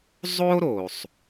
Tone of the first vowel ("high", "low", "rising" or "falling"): high